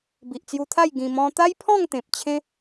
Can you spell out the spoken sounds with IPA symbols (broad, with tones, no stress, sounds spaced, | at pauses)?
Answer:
b i˨ ʔ t͡s j u˧ t̪ʰ a˥˧ j ɡ ĩ˧ m ɔ̃˦ t̪ a˦ j pʰ ɔ̃˥˧ ŋ t̪ ẽ˨ p̚ t͡ɕʰ ẽ˦